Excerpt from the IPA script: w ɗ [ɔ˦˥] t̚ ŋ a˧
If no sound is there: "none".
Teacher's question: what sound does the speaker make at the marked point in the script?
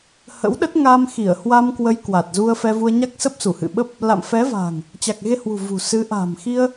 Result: ə˦˥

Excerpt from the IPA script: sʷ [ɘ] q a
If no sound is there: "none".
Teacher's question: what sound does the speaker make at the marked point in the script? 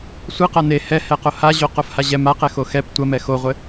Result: ɘ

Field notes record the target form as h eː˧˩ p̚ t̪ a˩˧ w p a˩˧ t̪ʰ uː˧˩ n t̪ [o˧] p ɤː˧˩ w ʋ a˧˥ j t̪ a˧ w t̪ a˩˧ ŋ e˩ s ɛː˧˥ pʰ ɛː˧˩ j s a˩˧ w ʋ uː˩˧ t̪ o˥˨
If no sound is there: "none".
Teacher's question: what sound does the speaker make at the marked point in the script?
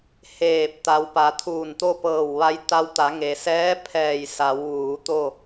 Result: o˥˨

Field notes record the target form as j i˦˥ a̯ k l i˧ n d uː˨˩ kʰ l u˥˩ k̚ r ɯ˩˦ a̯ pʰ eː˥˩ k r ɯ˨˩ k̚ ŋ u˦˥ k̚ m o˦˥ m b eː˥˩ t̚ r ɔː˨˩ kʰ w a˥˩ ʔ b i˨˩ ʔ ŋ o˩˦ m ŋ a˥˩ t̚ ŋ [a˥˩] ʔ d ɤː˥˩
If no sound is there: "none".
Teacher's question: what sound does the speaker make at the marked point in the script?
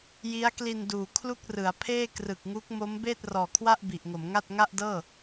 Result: a˥˩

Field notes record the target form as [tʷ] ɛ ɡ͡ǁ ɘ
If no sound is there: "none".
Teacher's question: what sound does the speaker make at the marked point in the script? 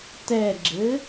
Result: t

